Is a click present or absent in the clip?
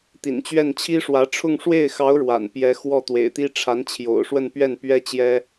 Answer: absent